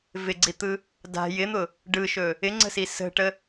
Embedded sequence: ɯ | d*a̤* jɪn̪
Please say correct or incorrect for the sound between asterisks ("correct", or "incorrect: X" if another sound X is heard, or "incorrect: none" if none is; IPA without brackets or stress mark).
correct